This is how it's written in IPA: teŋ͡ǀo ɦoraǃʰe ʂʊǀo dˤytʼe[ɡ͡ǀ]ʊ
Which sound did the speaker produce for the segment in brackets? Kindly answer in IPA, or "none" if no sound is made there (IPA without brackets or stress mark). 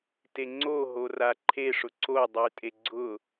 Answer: ɡ͡ǀ